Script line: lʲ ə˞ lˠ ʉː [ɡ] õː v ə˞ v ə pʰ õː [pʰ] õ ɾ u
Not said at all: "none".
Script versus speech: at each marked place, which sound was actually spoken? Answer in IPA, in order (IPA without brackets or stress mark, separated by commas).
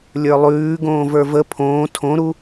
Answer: ɡ, tʰ